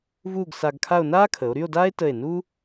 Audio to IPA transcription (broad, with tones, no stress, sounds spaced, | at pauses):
v uː˥˧ ɡ s a˧ ɡ kʰ a˥˧ o̯ n aː˥ kʰ ə˩˧ o̯ ɾ y˥˧ o̯ d aː˥ e̯ t ə˧˩ e̯ n u˥